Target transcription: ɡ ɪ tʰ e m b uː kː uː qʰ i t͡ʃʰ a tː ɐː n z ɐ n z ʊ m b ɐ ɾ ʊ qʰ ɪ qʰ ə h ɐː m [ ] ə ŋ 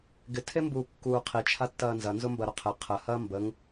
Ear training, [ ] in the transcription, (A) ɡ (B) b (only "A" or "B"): B